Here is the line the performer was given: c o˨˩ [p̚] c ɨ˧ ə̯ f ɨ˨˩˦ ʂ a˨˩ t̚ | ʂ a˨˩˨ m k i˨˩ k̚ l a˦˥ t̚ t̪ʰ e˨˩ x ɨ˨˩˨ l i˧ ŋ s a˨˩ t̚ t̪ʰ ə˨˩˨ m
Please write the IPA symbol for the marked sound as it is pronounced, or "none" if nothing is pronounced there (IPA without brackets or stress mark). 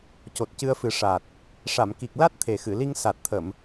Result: t̚